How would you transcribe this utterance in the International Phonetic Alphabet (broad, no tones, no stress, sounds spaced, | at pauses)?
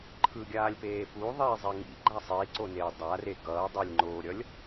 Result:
ǃʰ ɯ ɡʲ aː lʲ p eː p u ðˤ iː zˤ e ŋ ḭ ɡ͡ǃ a sˤ iː ǀ o n eː dˤ a r e ɡ ʌː dˤ ɛ lʲ ŋ͡ǃ oː ɾʲ ʌ lʲ